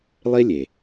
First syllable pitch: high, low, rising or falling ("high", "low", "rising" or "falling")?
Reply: high